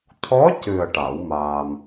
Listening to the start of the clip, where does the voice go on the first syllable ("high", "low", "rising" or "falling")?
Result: rising